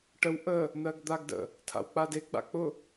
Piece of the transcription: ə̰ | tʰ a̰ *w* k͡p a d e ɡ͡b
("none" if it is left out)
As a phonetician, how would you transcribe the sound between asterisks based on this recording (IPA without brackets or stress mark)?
w